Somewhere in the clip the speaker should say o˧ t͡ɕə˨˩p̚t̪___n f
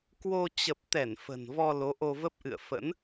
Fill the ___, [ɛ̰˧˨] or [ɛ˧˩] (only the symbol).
ɛ˧˩